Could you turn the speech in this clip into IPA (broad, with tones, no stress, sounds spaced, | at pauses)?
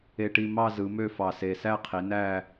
e˧ ʈ i˧ m ɑ˥˧ z ɯ˩˧ m ø˥˧ f ɑ˧˩ s e˧˩ s æ˥˧ qʰ i˩˧ n æ˥˧